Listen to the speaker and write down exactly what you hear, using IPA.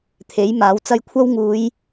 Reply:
t̪ʰ e˨˥ j m aː˨˥ w t͡s ɐ˧ j kʷʰ ɐ˥ w ŋ uː˨˧ j

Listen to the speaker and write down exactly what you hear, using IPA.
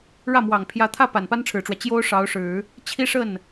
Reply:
ɻ ä˥˩ m w ɑ˨˩ ŋ pʰ j ä˧˥ t̪ʰ ä˥˩ p a˨˩ n p a˥ n ʈ͡ʂʰ ɻ̩˨˩ ʈ͡ʂ w ä˦ t͡ɕ j o˥ ʊ̯ ʂ ɑ˧˥ ʊ̯ ʂ ɻ̩˨˩˦ | t͡ɕʰ i˥ ʂ ə˥˩ n

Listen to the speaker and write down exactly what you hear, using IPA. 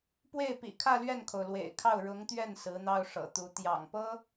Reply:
p w e˥˩ ɪ̯ p ḭ˨˩ kʰ ä˥˧ l ɥ ɛ˥˩ n kʰ o˩ ʊ̯ l w ḛ˨˩ ɪ̯ kʰ ɑ˥˩ ʊ̯ ɻ ʊ˧˥ ŋ t̪ ɥ ɛ˥˩ n s ɹ̩˧˥ n̪ ɑ˥ ʊ̯ ʂ ɤ̰˨˩ t̪ u˧˥ t̪ j ɑ̰˨˩ ŋ p ɤ˥

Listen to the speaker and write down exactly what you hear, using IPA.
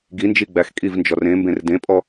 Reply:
ɡ i n d͡ʒ i ɡ͡b æ x kʼ i v n d͡ʒ ɔ r ẽ m b ẽ r d ẽ pʼ ɔ

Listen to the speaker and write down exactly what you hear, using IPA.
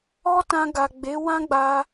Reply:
ɔ˦ t ã˧ ɡ a˨ ɡ͡b e˨˦ w ã˦ ɡ͡b a˧

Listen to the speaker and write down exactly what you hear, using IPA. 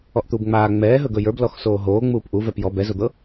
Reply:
ɔ ʔ t̪ u b ŋ͡m aː ŋ͡m ɛː ɦ ɵ ɡ ɵ j ə˞ b l ɔ x s oː ɦ oː ŋ͡m uː p ʔ u v ɛ p j ɔ b ɛ z o d̪ ɤ

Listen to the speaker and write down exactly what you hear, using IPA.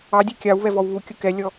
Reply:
ɑ dʲ ɛ kʲ ɑ w β ɛ v ɔ w β u kʲ ʊ k ɛ lʲ ɔ

